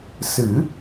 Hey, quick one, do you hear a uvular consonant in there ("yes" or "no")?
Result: no